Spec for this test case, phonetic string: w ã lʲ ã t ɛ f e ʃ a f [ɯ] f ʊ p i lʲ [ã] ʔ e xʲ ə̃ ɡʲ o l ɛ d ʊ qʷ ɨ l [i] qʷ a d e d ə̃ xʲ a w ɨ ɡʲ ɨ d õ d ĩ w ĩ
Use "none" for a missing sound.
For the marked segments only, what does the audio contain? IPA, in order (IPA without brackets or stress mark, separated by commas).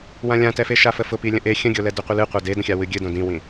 ə, ə̃, ɨ